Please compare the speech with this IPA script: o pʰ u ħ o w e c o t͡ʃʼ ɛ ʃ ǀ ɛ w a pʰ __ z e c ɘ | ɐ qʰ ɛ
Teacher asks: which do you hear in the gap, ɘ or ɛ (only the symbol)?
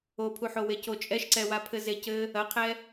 ɘ